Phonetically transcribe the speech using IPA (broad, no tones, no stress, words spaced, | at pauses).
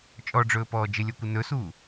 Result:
t͡ʃʼɔɖ͡ʐɵːpɔː d͡ʒɪlʲɔkʷɪ nɵsuː